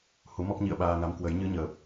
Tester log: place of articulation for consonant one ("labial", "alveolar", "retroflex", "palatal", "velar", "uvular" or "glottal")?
glottal